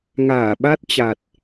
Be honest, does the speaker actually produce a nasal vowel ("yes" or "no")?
no